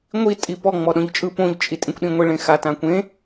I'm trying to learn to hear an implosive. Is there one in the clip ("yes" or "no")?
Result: yes